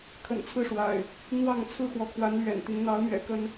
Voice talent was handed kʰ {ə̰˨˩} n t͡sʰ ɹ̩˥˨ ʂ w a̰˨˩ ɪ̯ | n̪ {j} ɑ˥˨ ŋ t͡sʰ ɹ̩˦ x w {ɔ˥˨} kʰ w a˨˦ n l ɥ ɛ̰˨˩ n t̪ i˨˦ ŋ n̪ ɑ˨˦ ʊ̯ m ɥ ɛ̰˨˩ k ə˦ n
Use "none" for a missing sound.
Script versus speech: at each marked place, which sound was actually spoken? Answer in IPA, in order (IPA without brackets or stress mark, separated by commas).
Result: ə̰˨˩, w, ɔ˨˦